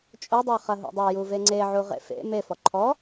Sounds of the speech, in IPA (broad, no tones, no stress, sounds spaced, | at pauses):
t͡ʃʼ o dˤ a χ ɐ ɦ o̰ dˤ ɛ j u v e ŋ͡ǀ e ʕ u ʁ ḛ f ḛ m e f ɔ ǃʰ ɔ